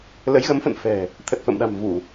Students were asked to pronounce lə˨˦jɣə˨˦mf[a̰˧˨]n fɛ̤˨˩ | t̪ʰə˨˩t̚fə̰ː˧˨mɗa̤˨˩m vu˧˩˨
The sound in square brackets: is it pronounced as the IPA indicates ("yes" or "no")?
no